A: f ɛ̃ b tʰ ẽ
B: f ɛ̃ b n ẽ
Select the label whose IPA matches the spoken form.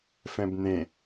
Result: B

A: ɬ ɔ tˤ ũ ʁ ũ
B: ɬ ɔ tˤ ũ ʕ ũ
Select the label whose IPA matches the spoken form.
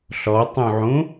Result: B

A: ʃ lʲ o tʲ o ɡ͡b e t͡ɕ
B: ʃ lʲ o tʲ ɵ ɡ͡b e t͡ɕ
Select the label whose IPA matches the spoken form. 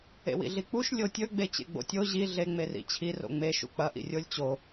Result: B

